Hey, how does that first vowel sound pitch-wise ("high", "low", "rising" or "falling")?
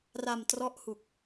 low